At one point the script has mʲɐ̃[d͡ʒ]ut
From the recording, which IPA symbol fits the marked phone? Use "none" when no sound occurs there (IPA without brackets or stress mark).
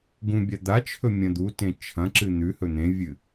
d̪